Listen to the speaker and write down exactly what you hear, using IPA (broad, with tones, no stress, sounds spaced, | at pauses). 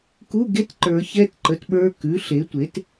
k u˧˥˧ ɡ e˧˥˧ t ǃ ə˞˨˩˦ ç ɛ˧˥˧ t ǃ ə˩˥ t ɓ ə˞˧˥˧ k ʉ˩˥ ɬ e˩˥ tʷ e˩˥ t